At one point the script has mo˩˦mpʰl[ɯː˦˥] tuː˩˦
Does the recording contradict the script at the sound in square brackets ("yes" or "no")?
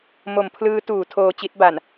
no